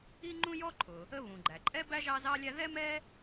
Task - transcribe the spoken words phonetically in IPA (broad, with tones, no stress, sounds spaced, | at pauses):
i˥ ŋ͡ǃ ũ˥ j ɔ˥ ǃʰ ʊ˩ | ə˥ β ũ˩ ɡ͡ǃ æ˩ ǃʼ ɛ˥ b æ˥ ʒ ɑ˥ z ɑ˥ lʲ æ˥ ð ɛ˥ m ɛ˥